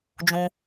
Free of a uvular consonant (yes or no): yes